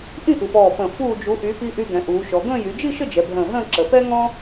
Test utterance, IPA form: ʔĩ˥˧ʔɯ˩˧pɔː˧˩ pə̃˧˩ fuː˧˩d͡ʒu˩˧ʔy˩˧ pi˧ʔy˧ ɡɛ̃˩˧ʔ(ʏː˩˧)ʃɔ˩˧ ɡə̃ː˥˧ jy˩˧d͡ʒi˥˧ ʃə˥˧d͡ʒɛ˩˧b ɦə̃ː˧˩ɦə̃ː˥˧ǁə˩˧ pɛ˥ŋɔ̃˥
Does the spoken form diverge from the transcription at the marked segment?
yes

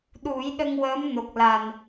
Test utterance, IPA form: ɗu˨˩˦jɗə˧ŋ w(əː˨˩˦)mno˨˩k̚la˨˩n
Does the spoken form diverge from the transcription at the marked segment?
yes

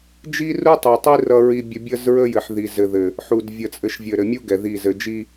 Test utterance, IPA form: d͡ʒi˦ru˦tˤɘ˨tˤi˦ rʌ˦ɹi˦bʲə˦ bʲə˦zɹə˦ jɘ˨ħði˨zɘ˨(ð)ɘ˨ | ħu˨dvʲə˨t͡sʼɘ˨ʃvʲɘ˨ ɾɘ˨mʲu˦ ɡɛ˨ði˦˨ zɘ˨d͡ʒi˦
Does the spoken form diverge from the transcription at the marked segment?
no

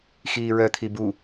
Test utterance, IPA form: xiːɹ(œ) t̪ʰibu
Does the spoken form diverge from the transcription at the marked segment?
no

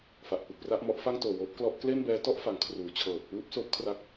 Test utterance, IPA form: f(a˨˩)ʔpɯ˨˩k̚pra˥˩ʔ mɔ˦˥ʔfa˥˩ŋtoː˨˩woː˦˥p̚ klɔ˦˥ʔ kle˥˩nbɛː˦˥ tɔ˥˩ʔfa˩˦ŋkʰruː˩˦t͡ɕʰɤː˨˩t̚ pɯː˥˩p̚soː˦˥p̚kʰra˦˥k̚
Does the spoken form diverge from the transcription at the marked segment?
no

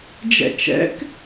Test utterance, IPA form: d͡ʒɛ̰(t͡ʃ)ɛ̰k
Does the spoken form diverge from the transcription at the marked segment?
no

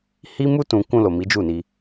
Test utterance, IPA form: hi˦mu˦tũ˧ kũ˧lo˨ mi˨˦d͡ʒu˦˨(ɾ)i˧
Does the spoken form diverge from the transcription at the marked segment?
yes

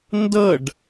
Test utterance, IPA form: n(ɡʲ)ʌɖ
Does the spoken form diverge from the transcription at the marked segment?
yes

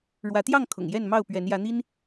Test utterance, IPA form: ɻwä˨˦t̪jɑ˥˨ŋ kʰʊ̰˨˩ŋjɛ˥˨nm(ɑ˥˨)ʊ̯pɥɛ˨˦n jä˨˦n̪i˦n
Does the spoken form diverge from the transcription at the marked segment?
no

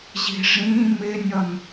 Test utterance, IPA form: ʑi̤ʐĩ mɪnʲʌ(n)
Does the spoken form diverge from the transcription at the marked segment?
no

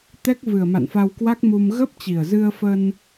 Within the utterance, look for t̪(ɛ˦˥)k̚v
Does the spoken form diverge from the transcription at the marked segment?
no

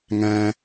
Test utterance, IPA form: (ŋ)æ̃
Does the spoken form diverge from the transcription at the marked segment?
no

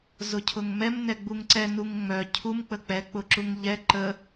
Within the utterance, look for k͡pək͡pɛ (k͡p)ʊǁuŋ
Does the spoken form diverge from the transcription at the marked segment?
no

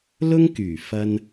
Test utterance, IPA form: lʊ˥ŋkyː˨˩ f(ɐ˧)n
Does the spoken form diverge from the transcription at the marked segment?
no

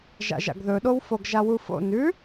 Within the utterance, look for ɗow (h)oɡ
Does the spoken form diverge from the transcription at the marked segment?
yes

